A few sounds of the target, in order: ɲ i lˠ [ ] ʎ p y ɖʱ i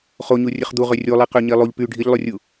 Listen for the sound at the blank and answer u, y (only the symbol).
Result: u